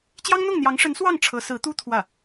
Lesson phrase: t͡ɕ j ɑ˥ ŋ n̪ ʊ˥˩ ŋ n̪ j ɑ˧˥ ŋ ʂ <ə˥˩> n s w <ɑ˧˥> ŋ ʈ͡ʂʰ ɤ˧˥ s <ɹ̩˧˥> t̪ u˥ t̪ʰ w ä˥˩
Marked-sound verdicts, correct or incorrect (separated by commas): incorrect, incorrect, correct